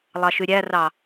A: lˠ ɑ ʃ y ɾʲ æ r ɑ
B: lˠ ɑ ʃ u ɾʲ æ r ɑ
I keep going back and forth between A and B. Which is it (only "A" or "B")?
A